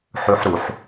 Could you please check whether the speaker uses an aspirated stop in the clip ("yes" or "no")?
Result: no